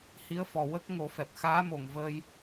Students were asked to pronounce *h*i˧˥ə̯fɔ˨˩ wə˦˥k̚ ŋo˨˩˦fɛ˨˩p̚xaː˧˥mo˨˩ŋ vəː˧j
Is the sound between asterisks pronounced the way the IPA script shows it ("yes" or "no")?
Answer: yes